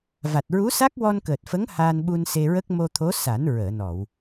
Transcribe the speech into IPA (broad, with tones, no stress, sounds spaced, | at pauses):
v a˨˩ t̚ ɹ u˧˥ s a˦˥ k̚ w ɔ˧ n k əː˨˩ t̚ f ə˧˥ ŋ h aː˧ n ɓ u˧ n s e˧ ɹ ə˦˥ k̚ m o˧ t̪ʰ o˧˥ s a˨˩˦ n ɹ əː˨˩˨ n ɔ˨˩˨ w